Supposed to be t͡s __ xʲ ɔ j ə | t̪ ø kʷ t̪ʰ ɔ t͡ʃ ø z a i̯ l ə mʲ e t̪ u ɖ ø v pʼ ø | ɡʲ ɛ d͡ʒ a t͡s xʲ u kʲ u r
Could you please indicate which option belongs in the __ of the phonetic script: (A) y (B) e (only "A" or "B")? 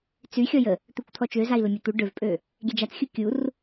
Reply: A